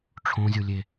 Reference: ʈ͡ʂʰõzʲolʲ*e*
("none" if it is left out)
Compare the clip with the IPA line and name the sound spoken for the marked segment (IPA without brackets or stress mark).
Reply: e